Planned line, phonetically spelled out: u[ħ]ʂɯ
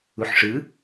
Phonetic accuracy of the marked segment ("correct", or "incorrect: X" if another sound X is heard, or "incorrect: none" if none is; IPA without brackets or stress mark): correct